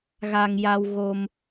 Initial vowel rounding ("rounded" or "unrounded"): unrounded